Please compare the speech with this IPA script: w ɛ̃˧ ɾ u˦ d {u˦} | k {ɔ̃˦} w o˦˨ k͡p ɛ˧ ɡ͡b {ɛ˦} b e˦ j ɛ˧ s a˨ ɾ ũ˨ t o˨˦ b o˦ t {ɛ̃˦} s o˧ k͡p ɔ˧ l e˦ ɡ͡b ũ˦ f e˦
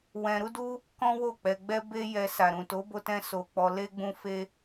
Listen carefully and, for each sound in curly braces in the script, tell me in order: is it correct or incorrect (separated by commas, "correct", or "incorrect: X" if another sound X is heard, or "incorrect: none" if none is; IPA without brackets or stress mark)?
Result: correct, correct, correct, correct